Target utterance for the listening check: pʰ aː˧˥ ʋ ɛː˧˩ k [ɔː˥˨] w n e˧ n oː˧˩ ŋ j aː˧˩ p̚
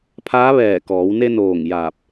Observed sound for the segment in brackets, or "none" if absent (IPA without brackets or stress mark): ɔː˩˧